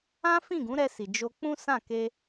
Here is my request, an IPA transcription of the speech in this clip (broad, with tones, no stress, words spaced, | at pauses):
ã˦fĩ˦˨ɡũ˨˦ɾɛ˧ si˨ d͡ʒo˧ k͡pũ˦sã˦˨ke˧